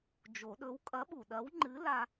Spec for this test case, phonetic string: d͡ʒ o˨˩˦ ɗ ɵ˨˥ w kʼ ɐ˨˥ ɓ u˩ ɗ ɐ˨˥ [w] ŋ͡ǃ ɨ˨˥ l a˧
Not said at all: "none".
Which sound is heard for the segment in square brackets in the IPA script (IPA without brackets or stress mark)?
w